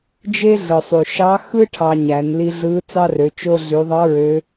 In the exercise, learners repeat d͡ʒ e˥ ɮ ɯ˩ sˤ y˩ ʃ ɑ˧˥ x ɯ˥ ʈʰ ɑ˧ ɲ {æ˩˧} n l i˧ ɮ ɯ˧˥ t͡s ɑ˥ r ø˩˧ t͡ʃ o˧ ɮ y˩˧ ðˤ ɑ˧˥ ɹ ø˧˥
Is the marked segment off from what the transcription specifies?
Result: no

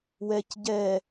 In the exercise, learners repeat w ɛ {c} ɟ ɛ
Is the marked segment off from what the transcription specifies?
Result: no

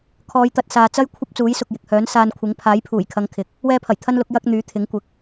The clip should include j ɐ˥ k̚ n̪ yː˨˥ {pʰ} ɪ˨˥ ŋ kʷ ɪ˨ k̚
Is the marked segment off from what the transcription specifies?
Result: yes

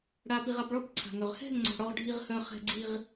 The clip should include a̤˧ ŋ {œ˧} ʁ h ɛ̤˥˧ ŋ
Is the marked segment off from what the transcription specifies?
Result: no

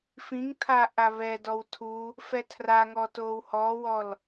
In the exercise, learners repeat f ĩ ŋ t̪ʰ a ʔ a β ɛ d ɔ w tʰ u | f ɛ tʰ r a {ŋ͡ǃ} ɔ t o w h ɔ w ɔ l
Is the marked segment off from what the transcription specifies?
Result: yes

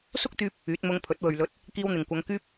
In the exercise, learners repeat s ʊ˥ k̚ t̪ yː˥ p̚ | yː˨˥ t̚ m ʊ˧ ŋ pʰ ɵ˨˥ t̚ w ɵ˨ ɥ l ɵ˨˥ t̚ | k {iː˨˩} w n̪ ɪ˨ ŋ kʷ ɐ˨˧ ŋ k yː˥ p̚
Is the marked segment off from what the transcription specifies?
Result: yes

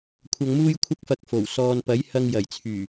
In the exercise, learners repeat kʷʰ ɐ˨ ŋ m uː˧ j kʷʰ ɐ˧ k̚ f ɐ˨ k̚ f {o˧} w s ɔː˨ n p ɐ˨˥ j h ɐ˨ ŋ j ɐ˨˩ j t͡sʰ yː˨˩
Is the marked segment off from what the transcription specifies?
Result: yes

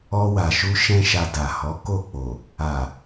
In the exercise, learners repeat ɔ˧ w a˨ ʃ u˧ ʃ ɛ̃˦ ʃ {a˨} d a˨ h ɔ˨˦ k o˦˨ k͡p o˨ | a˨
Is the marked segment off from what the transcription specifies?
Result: yes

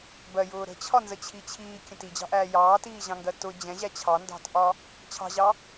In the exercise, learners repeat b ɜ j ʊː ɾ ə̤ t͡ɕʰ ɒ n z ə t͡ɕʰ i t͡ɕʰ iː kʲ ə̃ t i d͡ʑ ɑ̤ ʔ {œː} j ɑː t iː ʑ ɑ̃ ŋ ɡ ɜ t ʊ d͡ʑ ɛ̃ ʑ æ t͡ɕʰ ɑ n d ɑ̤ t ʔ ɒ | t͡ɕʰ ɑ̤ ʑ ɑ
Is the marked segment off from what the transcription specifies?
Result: yes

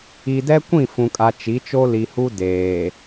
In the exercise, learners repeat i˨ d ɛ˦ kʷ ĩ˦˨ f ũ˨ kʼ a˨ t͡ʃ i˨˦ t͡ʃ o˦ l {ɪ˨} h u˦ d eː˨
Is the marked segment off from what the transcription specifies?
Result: yes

